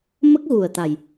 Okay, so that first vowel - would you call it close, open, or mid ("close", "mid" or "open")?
mid